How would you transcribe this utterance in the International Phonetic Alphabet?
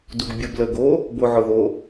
d u ɡ bʲ ʊ b l ə ɡ o | b o ʕ ʊ ð o

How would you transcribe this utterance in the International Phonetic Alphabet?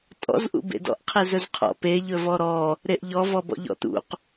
tʼ ɔ̰ z ʔ ṵ b ḛ d ɔ̰ ʔ qʰ e z ɵ z qʰ ɔ̰ p e ʎ ɵ v ɔ ɾ ɔ | ɾ e ʔ ʎ ɔ v ɔ b ɔ̰ ʎ ɔ̰ t ṵ q

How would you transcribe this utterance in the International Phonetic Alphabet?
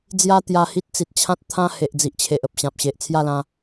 d͡z j a˦ t̪ j a˧ h i˦ t̚ t͡s i˨ t̚ t͡ɕʰ ã˦ t̚ t̪ʰ ã˦ h e˨ ʔ d͡z i˨ ʔ t͡ɕʰ e˨ ʔ ə˨ p̚ ɕ ã˨ p̚ ɕ e˨ ʔ t͡sʰ j a˥˧ l ã˧

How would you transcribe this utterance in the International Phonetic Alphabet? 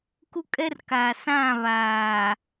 k u˦ kʼ ɛ˦ r k aː˨ s ã˦˨ β aː˨

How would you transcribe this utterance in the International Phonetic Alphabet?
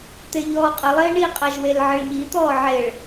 t̪ e ʎ ɔː qʼ ə lˠ eː ɳ i qʼ a ʒ w e l ʕ ə ɭ ʎ i t̪ ɔː ʕ e ɭ

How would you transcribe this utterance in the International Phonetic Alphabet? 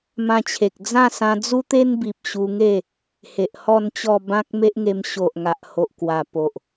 m ã˧ t͡ɕʰ e˨ k̚ d͡z ã˥˧ s ã˧ d͡z u˦ t̪ e˦ n b i˨ p̚ ɕ u˧ ŋ e˥˧ | h e˨ ʔ h ɔ˥˧ n t͡ɕ ɔ˥˧ b ã˦ k̚ m e˦ ʔ ŋ e˧ m ɕ o˨ ʔ ŋ a˨ ʔ h o˨ ʔ k w a˨˩ p o˨ ʔ

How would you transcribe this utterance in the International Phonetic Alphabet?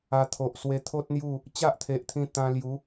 a˧ t̪ʰ o˨ ʔ s w e˧ t̪ʰ o˦ t̚ n̪ j u˥˧ | t͡ɕ a˦ ʔ t̪ʰ e˨ ʔ t̪ʰ ĩ˧ t̪ ã˧ l j u˨˦

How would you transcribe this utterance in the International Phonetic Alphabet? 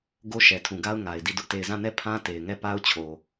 ɡ o˦ ʃ ɛ˨ tʰ ũ˨ ɡ a˦ ʊ̯ ŋ a˨ ɪ̯ d i˦˨ d ʊ˦ ʔ t e˦˨ ɪ̯ z ã˦˨ n ɛ˦˨ pʰ ã˦ t e˨ ɪ̯ ŋ ɛ˦˨ p a˦ ʊ̯ t͡ɕʰ o˨

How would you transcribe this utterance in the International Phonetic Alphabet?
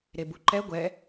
ɾ e b u ǃ ɛ ɡʷ ɛ

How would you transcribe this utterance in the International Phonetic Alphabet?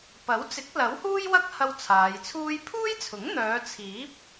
p ɐ˨˥ w t͡s ɪ˨˥ k̚ l ɐ˨˥ w h uː˥ j w ɐ˥ k̚ h ɐ˧ w t͡sʰ aː˨˧ j t͡sʰ uː˥ j pʰ uː˥ j t͡sʰ ʊ˨˥ ŋ n̪ œː˨˧ t͡sʰ iː˨˥ p̚

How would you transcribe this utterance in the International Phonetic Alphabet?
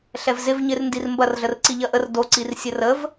ɬ ɛ v z ɪ v ɲ ɪ r n d i r m b ɐ r ɮ ə r ǀ i ʎ ɐ ʔ ə r d o ǀ i r sʲ ə r ə v

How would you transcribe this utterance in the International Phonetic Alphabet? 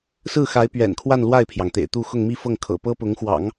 s ɹ̩˥˩ x a˧˥ ɪ̯ p ɥ ɛ̰˨˩ n kʰ w a˥˧ n l w a˥˩ ɪ̯ pʰ j ɑ˩ ŋ t̪ ḛ˨˩ ɪ̯ t̪ u˥˧ x ʊ˥˧ ŋ m i˥˧ f ɤ˥˩ ŋ kʰ ɤ̰˨˩ p ɤ˥ p ʊ˧˥ ŋ x w ɑ̰˨˩˦ ŋ

